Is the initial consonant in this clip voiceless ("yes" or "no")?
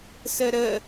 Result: yes